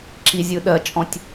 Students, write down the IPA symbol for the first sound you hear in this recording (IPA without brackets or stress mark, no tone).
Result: ǁ